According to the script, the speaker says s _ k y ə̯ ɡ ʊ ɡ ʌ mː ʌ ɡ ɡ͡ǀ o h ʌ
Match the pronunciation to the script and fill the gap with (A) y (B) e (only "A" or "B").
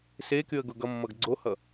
B